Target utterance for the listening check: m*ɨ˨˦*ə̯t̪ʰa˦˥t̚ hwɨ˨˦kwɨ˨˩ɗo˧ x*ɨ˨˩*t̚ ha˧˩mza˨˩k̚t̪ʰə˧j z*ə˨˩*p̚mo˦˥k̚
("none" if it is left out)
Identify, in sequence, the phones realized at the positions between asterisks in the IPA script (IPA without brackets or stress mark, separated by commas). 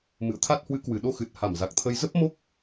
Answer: ɨ̰˧˨, ɨ˨˩, ə˦˥